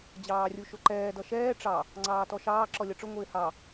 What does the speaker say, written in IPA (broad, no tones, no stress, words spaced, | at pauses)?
d͡ʑɑːrʲuʃʊǃɛː dʌʃɛː ʈ͡ʂɑ | ŋ͡ǀɑːtɔʃɑː ǁɔlʲʌʈ͡ʂʊ ŋʷɪːhɑ